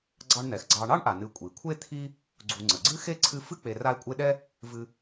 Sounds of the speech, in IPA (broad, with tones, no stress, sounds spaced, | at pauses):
ɡ͡ǀ ɑ˦ ɳ n̪ ɛ˩ x ɡ͡ǀ ɑ˨ ɳ ɑ˥ ɳ ʔ a˩ n ɨ˨ kʷʼ i˩ kʷʰ e˥ t̪ʰ i˦ | ɡ͡ǀ u˨ ŋ͡ǀ ə˩ ɡ͡ǀ ɨ˥ x e˥ ǀʰ ɨ˦ f ɨ˥ k͡p e˨ r a˦ e̯ kʷʼ e˦ ɗ ɛ˥ | v ɨ˦